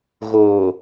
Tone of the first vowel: low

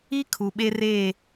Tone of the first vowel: high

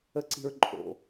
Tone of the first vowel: high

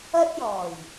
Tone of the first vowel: high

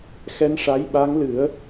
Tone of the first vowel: rising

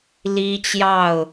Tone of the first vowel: high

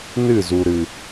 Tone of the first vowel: falling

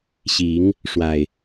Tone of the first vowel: rising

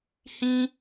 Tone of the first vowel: high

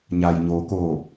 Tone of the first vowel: low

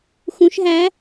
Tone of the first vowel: rising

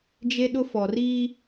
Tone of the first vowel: high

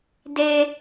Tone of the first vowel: high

